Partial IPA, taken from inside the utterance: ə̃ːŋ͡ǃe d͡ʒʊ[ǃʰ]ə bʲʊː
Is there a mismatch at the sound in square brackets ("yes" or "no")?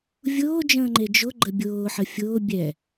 yes